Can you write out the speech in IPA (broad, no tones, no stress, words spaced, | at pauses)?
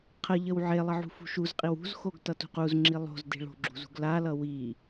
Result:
qʰəʎəw ʕelˠʌ ʕṳfṳʃuzqʼiw ṳzxoɡ tʌtṳquzŋ͡ǁi lˠo̤z di̤ɭo̤ɡ͡ǁṳ zṳɡlalʌ wi